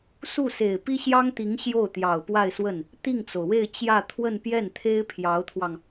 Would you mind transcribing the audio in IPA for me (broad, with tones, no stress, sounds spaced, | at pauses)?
s u˥˩ s e˨˩ ɪ̯ p i˥ ɕ j ɑ˥ ŋ t̪ i˧˥ ŋ ɕ j o˥˩ ʊ̯ t̪ j ɑ˨˩ ʊ̯ p w a˥˧ ɪ̯ s w ə˥˩ n | t̪ i˥˩ ŋ t͡s o˩ ʊ̯ w e˥˧ ɪ̯ t͡ɕ j ä˥˧ t̪ʰ w ə˥˧ n p j ɛ˥˩ n t̪ʰ e˥ ɪ̯ pʰ j ɑ˧˥ ʊ̯ t̪ʰ w ɑ˧ ŋ